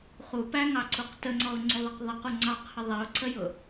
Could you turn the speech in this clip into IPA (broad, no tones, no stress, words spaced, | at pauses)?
χupæŋɑǀuq təŋ͡ǀɔʊ̯ŋ͡ǀuðˤʌq ðˤʌqu ŋ͡ǀɑqhə ðˤiʊ̯ǀəjʊ